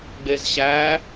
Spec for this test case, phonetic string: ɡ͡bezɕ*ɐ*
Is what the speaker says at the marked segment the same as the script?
no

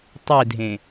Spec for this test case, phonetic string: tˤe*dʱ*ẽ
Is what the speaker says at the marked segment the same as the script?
yes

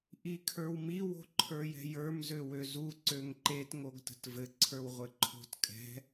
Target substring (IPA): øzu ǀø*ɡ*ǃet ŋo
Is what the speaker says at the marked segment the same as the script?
no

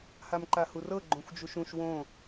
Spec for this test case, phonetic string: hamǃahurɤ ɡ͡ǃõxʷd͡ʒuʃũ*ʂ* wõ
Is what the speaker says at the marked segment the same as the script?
no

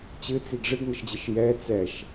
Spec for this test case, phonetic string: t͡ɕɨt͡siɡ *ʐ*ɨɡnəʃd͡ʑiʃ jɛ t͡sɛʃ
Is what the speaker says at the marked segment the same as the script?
yes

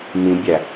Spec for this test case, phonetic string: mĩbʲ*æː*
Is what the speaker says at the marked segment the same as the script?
no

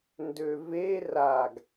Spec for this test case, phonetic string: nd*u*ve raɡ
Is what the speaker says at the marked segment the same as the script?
no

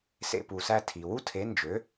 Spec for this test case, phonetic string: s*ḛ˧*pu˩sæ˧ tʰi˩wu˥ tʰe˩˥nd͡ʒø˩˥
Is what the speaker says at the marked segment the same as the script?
yes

